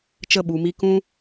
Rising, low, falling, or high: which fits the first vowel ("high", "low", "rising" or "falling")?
falling